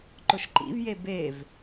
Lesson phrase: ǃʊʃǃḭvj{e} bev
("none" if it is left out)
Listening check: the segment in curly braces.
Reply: e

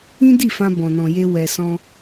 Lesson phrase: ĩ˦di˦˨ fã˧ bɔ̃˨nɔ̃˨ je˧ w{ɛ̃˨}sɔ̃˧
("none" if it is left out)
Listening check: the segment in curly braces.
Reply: ɛ˨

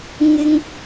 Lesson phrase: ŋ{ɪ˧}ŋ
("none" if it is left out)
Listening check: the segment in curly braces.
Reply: ɪ˥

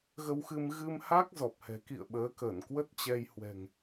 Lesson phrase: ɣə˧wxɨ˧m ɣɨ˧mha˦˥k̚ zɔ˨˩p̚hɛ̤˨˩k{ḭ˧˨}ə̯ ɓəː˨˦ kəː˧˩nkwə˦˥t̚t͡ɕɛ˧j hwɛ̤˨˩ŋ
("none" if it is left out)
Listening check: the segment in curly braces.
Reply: ḭ˧˨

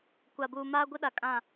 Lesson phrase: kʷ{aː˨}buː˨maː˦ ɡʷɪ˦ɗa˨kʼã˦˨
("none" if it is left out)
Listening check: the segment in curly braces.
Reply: a˨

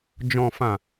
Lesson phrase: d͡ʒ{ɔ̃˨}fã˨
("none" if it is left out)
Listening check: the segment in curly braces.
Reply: ɔ̃˨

